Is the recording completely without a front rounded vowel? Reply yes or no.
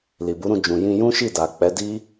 yes